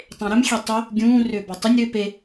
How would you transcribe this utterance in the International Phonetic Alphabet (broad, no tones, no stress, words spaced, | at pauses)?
tˤẽɾʏm xʲetˤʏ | ɡʲũː rʏːbɔtˤʏnʲ ɾʏ pe